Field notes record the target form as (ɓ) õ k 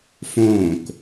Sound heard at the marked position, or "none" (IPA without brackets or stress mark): f